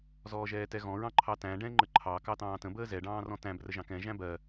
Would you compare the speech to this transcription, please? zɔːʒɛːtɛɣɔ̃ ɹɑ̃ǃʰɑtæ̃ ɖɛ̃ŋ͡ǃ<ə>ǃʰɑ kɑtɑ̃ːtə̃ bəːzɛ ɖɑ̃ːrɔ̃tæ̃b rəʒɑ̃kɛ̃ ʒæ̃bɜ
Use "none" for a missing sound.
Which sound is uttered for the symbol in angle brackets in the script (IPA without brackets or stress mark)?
ə